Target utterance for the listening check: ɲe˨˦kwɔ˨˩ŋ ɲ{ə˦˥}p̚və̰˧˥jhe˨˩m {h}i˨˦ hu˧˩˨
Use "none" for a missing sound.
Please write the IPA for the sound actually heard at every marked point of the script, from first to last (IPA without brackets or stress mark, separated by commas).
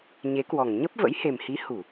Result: ə˦˥, h